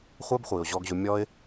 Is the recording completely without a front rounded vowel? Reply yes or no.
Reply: no